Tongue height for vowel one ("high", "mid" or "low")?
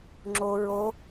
mid